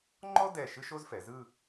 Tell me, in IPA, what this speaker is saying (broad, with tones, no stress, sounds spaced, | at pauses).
ŋ͡ǃ ɔ˥ d ɛ˧˩ ʃ ɯ˥ ʃ o˥ z f ɛ˩˧ z ɯ˥˧